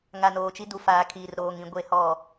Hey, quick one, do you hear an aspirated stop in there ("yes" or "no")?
yes